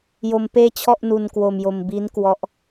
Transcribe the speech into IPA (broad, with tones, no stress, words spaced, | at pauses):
jo˧mpeː˥˩t͡ɕʰɔ˥˩ʔ nu˧n kwo˧mjo˧m bi˦˥nkwɔ˦˥ʔ